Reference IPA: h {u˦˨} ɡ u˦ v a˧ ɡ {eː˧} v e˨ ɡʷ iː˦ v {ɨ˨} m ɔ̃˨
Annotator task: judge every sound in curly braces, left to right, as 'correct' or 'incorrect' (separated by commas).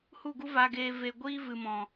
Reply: correct, correct, correct